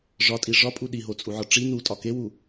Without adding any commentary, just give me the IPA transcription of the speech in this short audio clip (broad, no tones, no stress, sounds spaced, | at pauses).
ʐ ɒ tʼ i ʐ ɒ pʼ u ɗ i ɦ o t͡sʼ u ʕ ɒ ʈ͡ʂ i n u tʼ ɒ k e w u